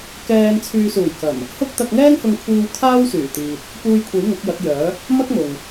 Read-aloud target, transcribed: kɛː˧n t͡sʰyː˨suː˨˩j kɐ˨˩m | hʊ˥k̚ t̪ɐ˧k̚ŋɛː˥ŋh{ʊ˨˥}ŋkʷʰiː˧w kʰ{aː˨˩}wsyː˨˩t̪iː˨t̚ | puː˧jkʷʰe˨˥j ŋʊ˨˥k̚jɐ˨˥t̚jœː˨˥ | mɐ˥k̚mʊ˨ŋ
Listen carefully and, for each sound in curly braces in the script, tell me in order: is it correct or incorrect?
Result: incorrect: ʊ˧, incorrect: aː˥

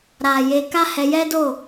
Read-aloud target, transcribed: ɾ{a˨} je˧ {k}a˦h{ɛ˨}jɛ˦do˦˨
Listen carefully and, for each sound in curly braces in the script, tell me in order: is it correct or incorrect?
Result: correct, correct, incorrect: ɛ˧

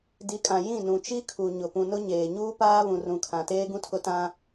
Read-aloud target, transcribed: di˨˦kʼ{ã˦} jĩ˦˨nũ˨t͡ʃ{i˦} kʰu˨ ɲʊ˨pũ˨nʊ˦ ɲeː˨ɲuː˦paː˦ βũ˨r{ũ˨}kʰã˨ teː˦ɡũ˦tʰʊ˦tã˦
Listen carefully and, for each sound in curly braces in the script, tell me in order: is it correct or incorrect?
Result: incorrect: ã˨, correct, correct

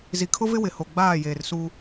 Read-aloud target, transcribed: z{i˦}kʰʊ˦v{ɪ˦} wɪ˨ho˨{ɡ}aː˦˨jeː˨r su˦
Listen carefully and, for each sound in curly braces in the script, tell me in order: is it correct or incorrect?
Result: incorrect: i˨, correct, incorrect: ɡ͡b

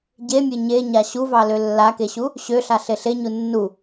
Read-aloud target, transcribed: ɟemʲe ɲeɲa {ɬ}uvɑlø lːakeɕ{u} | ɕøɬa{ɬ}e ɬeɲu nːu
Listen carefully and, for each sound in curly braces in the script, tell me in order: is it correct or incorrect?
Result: incorrect: ɕ, correct, correct

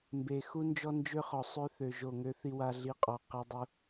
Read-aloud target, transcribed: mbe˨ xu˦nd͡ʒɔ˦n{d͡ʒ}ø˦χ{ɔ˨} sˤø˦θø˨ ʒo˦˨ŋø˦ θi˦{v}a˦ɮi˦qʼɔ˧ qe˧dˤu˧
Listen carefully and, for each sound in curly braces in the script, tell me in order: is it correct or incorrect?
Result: correct, correct, incorrect: w

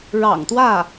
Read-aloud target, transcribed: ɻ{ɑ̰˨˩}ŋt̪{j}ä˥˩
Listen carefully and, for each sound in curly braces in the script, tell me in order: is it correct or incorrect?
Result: correct, incorrect: w

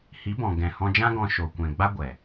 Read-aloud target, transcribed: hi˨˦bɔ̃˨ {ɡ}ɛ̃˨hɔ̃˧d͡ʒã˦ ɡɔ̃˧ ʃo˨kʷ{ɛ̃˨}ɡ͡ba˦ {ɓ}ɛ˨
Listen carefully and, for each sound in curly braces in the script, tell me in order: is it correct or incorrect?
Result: correct, correct, incorrect: ɡʷ

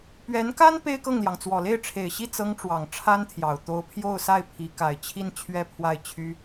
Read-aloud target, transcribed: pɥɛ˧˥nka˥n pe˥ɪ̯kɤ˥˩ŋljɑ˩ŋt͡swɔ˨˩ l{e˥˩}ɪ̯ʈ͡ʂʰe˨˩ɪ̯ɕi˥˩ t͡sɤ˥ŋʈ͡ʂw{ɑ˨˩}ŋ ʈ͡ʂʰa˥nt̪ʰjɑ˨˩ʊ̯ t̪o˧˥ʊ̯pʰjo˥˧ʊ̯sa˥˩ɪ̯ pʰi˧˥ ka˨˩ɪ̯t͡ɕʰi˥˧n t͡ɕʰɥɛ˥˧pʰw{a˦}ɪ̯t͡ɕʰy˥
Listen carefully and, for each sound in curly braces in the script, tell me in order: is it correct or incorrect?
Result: correct, correct, incorrect: a˥˩

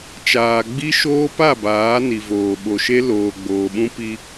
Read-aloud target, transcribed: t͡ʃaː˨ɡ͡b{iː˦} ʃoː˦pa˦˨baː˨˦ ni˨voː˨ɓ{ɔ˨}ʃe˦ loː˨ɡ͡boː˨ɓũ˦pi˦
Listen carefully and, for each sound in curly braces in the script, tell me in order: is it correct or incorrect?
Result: incorrect: i˦, incorrect: o˨

